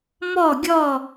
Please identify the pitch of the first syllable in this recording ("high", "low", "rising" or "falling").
falling